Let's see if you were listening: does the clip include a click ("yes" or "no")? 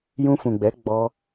no